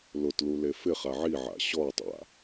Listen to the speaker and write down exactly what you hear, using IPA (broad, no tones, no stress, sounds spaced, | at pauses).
l ʊ t l u l e f ɪ χ a ʕ i ʕ a̰ ɕ ɔ tˤ a̰